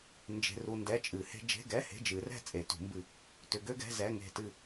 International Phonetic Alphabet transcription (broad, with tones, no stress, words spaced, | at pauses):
nd͡ʒe̤˨ru˨ ndɛ˧˥˧t͡ʃʼɨ˨˩˦he̤˥ d͡ʒe̤˧˥˧ɡɛ˧˥˧ he̤˧˥˧d͡ʒɨ˨˩˦rɛ̤˥ t͡sʼe˨˩˦tṳ˨˩˦mbɨ˦˨ | tʏ˨ɡø˥ɡɛ̤˧˥˧ zɛ˧˥˧ŋe̤˦˨tɨ˦˨